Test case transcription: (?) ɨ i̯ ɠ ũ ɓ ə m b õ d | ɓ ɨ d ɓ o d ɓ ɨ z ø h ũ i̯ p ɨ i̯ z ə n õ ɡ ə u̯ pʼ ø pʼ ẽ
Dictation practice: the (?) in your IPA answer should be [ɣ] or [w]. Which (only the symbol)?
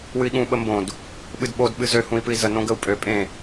w